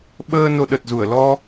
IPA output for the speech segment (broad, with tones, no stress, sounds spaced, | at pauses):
ɓ əː˧ n o˧ ɗ ə˨˩ t̚ z u˧˩ ə̯ l ɔ˧